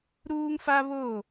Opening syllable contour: high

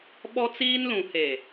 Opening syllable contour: high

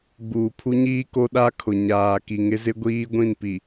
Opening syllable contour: low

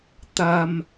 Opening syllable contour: low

